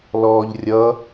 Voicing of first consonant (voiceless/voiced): voiced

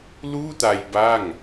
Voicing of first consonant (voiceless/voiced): voiced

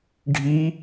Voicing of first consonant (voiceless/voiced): voiced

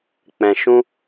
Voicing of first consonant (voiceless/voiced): voiceless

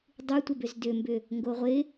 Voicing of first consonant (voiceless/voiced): voiced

